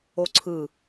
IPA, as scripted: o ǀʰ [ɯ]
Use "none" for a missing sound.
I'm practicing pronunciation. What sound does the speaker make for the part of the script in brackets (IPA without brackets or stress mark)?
ɯ